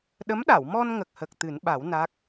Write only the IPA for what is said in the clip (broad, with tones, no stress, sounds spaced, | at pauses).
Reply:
ɗ ə˧˥ m ɗ a˨˩˨ w m ɔ˧ n ŋ ə˨˩ k̚ h ə˨˩ k̚ t̪ ɨ˨˩˦ n ɓ a˨˩˦ w n a˦˥ k̚